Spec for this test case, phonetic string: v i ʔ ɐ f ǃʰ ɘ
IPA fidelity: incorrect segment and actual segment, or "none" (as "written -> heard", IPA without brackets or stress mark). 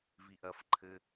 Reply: none